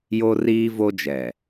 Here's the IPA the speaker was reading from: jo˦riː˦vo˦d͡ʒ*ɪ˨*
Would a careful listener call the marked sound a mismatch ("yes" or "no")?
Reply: yes